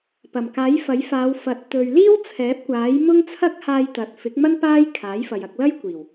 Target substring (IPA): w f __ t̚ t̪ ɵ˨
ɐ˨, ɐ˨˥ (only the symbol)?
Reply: ɐ˨˥